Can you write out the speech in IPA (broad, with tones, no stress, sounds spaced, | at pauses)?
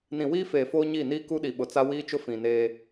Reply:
n ĩ˨ w iː˦ f eː˨ f oː˦ ɲ i˦˨ n iː˦ k u˦ ɗ i˨ ɓ ʊ˨ t͡s a˦ w iː˦ t͡ʃ ʊ˦ f ĩ˨ n eː˦